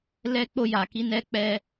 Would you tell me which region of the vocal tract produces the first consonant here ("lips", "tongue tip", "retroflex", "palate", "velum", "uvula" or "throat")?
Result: tongue tip